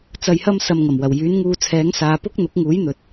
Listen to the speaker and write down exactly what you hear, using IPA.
t͡s ɐ˧ j h ɐ˥ m s ɐ˧ m ŋ ɐ˨˩ m w ɐ˨˩ w j yː˨˥ n ŋ uː˧ t͡sʰ ɛː˨˥ ŋ s aː˨ p ʊ˥ k̚ n̪ ʊ˨˥ k̚ ŋ uː˨˥ j n̪ ɵ˨ t̚

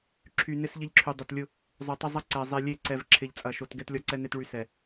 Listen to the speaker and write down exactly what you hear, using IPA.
ǁʰ y˨ n ɪ˦ s ʎ ɪ˦ ʎ ǁʰ y˨ dˤ ʊ˨ t lʲ ʊ˦ | zˤ ø˨ tˤ ʊ˦ zˤ ɐ˦ ǀ ɛ˨ zˤ e˨ lʲ e˦˨ ǀ ɛ˨ v ǁʰ ɪ˨ ʎ t͡sʼ ɐ˨ ʃ o˨ t ɡ ɛ˦ t lʲ ɔ˦ ǀ ɛ˦ n e˦ t ɭ y˦ s ɛ˨

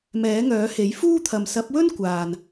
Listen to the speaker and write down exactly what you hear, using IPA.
m ɛː˨˥ ŋ œː˨˥ h e˨˥ j f uː˥ t̪ʰ ɐ˨ m s ɐ˨˥ p̚ w ɵ˥ n kʷ aː˨ n

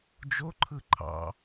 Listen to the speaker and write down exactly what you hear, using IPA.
d͡ʒ o ǃʰ ɯ ǃʰ ɑ̰

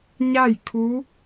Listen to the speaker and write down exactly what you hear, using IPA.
ɲ a˥˨ j kʰ u˧˥

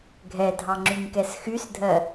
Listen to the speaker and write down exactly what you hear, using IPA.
ɡʱ ɛ dʱ ɑ ŋ͡ǁ y ɲ k ɛ s x y s dʱ ɜ

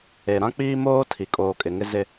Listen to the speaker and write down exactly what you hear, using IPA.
e˨ ɾ ã˦ k͡p iː˦ m oː˦ tʰ i˨ kʼ oː˨ kʼ ɪ˨ ŋ ɪ˦ z ɪ˦

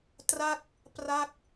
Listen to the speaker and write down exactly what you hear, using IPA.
t r a˥˩ k̚ | p r a˥˩ k̚

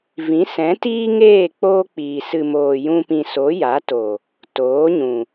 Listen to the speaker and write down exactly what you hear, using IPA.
v ĩ˨˦ s ɛ̃˨˦ t iː˦ ŋ eː˦˨ k͡p oː˦ k͡p iː˨ s ɨ˨ m oː˨ j ũ˧ p ĩ˨ s o˨˦ j a˨˦ t o˨ | t oː˨˦ ɲ ũ˨

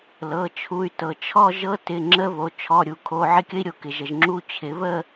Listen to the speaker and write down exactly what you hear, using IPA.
l ɤ˩˧˩ t͡ʃʰ u˩˧˩ y̯ t ɤ˩ t͡ʃʰ ɔ˥˧ ʒ ɤ˦˥ t ɪ˩˧˩ ŋ͡ǁ ə˦˥ β o˩˧ t͡ʃʰ ɔ˩˧˩ ɾʲ u˩ kʰ o˩˧˩ ʕ ɪ˥˧ kʲ ə˦˥ i̯ ɾʲ o˩ k ɪ˩ ʒ ə˩ ʒ ŋ͡ǁ u˦˥ t͡ɕʰ ɪ˩˧ β ə˥˧

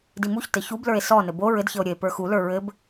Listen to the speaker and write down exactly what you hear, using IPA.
d i m u ç t ɘ ç u b l ə˞ e̯ s ɔ n ɘ b o ɹ ɘ d ç ɘ o̯ ɾʲ ə e̯ p ə˞ x u l ə˞ ɹ ɘ b

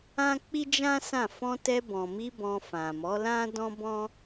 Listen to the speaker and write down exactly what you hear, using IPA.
ã˦ k͡p i˦ d͡ʒ ã˦ s ã˦˨ f ɔ̃˧ t ɛ˧ b ɔ̃˨ m i˧ b ɔ̃˧ f ã˨ m ɔ˨˦ l ã˦ d ɔ̃˦ b ɔ̃˦

